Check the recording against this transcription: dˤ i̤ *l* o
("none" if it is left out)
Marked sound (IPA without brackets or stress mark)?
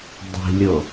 lʲ